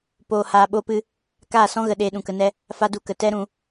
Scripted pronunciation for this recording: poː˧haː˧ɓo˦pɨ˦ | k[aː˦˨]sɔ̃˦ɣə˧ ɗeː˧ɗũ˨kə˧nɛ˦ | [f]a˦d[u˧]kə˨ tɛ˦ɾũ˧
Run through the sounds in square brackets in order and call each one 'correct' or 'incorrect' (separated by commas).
correct, correct, correct